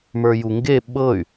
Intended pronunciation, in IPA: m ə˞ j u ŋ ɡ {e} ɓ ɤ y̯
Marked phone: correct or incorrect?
correct